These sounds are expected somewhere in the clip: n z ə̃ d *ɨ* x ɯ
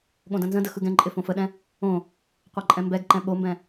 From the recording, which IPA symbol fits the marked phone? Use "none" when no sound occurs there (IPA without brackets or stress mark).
ə